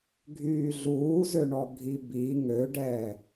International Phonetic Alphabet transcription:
ɡʱ yː ɮ uː z ø ɳ ɔ ɡʱ i b i ŋ ø ɖ ɛː

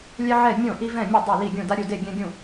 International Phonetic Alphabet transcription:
lʲ ɛ˧ ʕ ɛ˧˩˧ mʲ õ˧˩˧ ʔ i˧ v ɛ̃˧˩˧ mʲ ʌ˧˩˧ dˤ o˧˩˧ l i˧˩˧ ɡʲ ũ˧˩˧ d a˧ ɾʲ u˧˩˧ d e˧˩˧ ɡʲ ɛ̃˧ ɡʲ ũ˧˩˧

